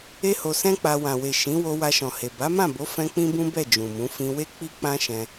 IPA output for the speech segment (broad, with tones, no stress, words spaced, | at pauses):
e˦ho˧sɛ̃˦k͡pa˧ wã˨we˨ ʃĩ˨˦wo˧ wa˧ʃɔ̃˨he˨ ba˨˦mã˦˨bo˨˦ fɛ̃˦k͡pĩ˦bũ˦bɛ˦˨ d͡ʒũ˨mũ˨˦ fĩ˧we˦ k͡pi˦k͡pã˦ʃɛ̃˧